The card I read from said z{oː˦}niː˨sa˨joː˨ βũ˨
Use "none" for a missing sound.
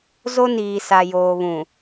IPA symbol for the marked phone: o˦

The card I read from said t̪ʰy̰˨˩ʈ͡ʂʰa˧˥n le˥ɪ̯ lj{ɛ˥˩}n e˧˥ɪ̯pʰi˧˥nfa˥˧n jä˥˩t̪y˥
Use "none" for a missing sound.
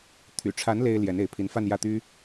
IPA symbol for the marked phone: ɛ˧˥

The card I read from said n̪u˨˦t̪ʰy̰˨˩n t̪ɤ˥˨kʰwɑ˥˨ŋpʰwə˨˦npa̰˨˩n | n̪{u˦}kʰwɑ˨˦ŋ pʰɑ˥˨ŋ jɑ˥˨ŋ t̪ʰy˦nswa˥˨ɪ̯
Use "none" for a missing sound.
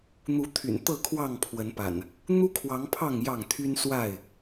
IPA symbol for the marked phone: u˦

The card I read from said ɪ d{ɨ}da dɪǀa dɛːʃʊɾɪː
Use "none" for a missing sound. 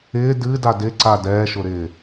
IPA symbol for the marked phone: ɨ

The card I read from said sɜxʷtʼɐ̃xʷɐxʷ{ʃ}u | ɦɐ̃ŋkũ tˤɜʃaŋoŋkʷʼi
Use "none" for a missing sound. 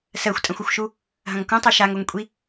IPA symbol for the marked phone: ʃ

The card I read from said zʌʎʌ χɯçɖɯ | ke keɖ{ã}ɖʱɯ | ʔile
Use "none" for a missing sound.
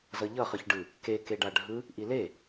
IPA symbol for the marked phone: a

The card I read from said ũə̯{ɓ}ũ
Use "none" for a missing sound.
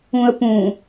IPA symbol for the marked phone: p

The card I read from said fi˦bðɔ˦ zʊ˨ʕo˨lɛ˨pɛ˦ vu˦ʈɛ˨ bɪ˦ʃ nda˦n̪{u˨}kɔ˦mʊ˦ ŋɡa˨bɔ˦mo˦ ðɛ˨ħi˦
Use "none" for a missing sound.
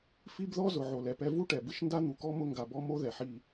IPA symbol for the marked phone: u˨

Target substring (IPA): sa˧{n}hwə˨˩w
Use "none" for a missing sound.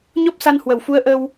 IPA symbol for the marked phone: n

